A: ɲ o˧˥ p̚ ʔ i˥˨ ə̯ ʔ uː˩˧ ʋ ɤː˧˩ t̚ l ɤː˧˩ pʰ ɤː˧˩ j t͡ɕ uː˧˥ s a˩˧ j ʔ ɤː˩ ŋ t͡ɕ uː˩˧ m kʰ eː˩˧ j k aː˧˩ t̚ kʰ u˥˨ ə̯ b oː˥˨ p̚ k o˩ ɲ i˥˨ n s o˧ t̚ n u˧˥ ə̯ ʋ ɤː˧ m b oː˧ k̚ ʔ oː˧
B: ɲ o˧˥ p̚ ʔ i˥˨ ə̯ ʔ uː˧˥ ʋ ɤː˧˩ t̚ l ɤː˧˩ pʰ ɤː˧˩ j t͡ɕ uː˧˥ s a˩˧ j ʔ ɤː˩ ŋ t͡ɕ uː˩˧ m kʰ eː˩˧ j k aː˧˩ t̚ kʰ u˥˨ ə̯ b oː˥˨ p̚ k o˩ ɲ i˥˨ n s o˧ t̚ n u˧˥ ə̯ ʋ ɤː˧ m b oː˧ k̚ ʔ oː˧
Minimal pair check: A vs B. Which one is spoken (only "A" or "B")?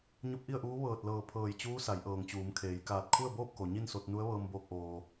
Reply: B